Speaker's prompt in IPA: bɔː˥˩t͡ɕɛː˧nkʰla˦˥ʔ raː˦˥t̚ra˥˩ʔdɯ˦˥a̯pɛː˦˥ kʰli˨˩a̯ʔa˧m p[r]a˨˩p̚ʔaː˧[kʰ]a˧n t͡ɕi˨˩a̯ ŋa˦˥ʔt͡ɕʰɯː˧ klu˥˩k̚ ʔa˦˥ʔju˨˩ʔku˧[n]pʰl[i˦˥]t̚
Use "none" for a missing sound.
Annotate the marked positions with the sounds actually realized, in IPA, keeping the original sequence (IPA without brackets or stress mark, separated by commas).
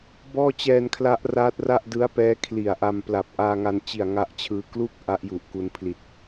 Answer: l, ŋ, n, i˨˩